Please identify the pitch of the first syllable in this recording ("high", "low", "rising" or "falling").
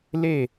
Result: falling